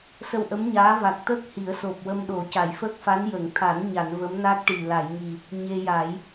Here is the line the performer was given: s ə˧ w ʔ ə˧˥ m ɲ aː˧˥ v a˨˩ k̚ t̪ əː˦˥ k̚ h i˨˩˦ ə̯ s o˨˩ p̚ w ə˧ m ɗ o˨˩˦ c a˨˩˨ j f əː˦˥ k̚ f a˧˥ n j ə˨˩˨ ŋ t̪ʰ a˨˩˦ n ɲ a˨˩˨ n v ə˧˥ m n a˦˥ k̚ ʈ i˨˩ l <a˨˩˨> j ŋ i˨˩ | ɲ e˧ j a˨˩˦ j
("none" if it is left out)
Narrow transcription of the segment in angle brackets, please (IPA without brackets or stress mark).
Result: a˨˩˨